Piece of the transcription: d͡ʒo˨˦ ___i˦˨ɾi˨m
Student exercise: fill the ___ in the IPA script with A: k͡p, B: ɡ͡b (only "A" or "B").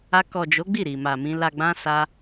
B